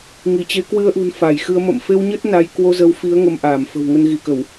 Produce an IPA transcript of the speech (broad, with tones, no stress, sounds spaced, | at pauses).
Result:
ŋ i˧˩ t͡ɕ e˨˦ k w ɨ˧ ə̯ ʔ ṳ˨˩ n f a˧˩ j x ɨ˧ ə̯ m ə̰˧˨ m f e˧ w ɲ ə˦˥ t̚ n a˨˦ j k w o˧ z ə˨˦ w f i˨˦ ə̯ ŋ ə˧ m ʔ aː˧˩ m f ə̤˨˩ w ŋ ə˧ n ɣ i˧˩ k ə˧˩˨ w